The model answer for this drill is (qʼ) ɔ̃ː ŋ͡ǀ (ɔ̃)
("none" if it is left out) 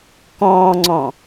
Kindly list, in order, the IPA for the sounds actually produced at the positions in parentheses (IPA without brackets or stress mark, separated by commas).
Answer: k, ɔ̃